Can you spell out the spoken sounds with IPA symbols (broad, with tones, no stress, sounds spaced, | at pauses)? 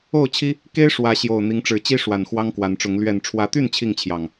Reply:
o˥˨ ʊ̯ t͡ɕʰ i˦ | k e˦ ɪ̯ ʂ w ä˨˦ ɕ j o˨˩ ʊ̯ n̪ i˨˦ ŋ ʈ͡ʂ ɻ̩˨˦ t͡ɕ i˦ ʂ w a˨˩ n x w ɑ˦ ŋ k w a˨˦ n ʈ͡ʂ ʊ˨˦ ŋ l ɥ ɛ˨˩ n ʈ͡ʂʰ w ä˨˦ t̪ y˥˨ n t͡ɕʰ i˥˨ ŋ t͡ɕʰ j ɑ˨˩ ŋ